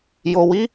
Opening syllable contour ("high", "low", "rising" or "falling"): low